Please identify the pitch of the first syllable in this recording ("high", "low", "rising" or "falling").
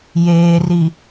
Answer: low